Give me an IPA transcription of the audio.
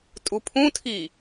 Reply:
tʼ u pʰ ũ tʰ i

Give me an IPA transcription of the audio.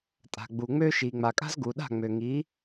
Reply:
tʼ a̤˩ ɡ͡b u˩ ŋ͡m ø˥ ʃ i˩ ŋ͡m a˩ kʼ a̤˥ z ɡ u˩ ɗ a̤˥˩ ŋ͡m ø˩ ŋ i˩˥

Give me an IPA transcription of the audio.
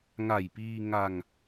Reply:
ŋ a˨˩ j p iː˧ ŋ a˧ ŋ

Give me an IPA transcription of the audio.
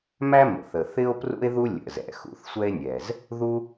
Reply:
m æ˥ m ə̰˩ θ ə˩ θ ɪ˥ o̯ p r ṵ˥ e̯ ð u˥ lʲ ə̰˩ z ɛ̰˩ x ṵ˩ θ sʷ ɛ˥ e̯ nʲ ɛ˩ z | ð u˥

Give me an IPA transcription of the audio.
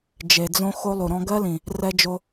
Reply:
d͡ʒ e˨ d͡z õ˦ x o˦ lˠ u˨ ɾ ɔ̃˦ ɡ ɜ˦ l ĩ˨ | r ɛ˦ d͡ʒ o˦

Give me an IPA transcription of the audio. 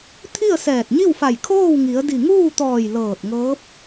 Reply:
t̪ʰ i˥˨ ə̯ s ɛː˧˩ t̚ ɲ i˥˨ w f a˧˩ j kʰ oː˥˨ w ŋ i˩˧ ə̯ d i˧˩ ŋ uː˥˨ t̪ ɔː˧˩ j l ɤː˧˩ t̚ ŋ ɤː˧˥ p̚

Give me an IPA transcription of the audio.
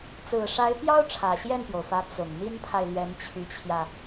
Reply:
t͡s ɹ̩˨˩ ʂ a˧˥ ɪ̯ p j ɑ˥ ʊ̯ ʈ͡ʂʰ ä˨˩ ɕ j ɛ˥˩ n p j o˩ ʊ̯ f ä˧˥ t͡s ʊ˨˩ ŋ n̪ i˥ n pʰ a˨ ɪ̯ l ɥ ɛ˧˥ n t͡ɕʰ y˧˥ t͡ɕʰ j ä˧

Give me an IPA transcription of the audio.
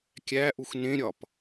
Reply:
kʲ æ ʔ u x n ẽ ɾʲ ɒ p

